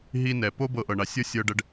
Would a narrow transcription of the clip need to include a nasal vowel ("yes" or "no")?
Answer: no